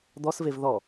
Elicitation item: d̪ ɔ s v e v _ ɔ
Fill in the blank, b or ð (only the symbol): ð